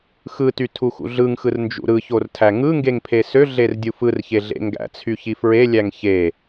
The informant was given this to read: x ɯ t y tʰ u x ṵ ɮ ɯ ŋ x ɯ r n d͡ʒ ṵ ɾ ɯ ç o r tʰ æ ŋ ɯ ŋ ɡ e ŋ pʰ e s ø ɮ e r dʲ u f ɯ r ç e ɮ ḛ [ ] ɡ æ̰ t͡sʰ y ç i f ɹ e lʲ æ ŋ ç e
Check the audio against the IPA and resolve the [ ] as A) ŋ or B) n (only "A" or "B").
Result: A